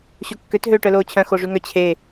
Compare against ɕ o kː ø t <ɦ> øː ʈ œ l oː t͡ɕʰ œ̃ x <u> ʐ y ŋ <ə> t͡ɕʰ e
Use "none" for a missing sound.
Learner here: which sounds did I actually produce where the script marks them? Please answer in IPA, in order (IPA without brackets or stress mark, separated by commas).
ɦ, o, œ